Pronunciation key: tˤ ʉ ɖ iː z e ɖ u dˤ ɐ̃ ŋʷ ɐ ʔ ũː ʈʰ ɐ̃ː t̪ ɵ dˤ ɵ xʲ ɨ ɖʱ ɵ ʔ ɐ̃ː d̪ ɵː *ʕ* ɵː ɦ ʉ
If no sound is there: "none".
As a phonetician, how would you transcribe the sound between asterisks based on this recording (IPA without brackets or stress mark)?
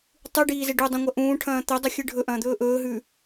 ʔ